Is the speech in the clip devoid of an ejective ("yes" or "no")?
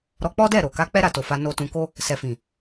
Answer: yes